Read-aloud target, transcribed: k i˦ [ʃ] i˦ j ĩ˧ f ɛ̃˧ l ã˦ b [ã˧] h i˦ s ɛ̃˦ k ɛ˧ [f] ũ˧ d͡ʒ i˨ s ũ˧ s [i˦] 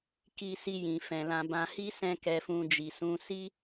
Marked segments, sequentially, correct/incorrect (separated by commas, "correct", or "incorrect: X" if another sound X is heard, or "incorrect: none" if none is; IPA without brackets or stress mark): incorrect: s, correct, correct, correct